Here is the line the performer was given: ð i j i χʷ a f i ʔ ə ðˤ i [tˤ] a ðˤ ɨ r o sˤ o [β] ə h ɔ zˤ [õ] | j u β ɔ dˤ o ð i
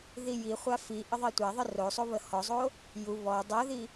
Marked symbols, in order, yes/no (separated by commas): no, yes, no